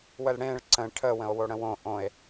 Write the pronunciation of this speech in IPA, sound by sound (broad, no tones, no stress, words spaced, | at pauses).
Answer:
wəlɽẽɭ ǀə̃ ʈʰə wə̃o̯woɽə̃wõ ʔõe̯